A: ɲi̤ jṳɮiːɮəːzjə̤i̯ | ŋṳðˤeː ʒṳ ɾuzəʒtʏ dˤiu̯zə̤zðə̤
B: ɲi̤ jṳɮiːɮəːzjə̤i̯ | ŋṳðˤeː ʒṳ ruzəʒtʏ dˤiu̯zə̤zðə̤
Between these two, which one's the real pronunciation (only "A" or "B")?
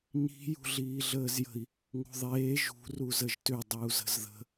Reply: B